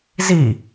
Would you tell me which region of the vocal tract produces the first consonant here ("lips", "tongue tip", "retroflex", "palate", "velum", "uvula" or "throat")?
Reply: tongue tip